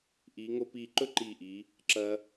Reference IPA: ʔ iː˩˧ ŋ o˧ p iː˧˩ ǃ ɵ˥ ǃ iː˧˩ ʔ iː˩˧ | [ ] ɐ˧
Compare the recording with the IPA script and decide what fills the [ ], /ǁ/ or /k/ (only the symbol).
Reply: ǁ